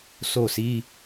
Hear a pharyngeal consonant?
no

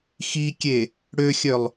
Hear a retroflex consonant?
yes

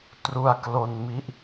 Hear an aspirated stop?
no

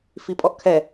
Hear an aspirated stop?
yes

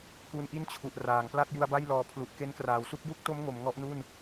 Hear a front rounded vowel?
no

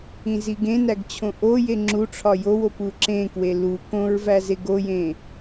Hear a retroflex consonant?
yes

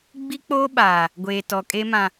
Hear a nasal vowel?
yes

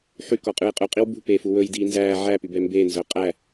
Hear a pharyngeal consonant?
yes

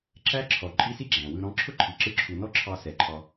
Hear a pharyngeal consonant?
no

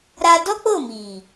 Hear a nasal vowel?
no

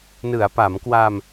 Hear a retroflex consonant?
no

